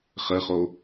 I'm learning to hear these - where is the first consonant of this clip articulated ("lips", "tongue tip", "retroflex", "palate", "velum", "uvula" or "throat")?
uvula